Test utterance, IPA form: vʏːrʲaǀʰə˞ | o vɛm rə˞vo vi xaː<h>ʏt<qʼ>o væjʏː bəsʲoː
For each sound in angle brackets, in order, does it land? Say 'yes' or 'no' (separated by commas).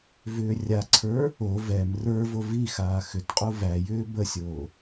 no, yes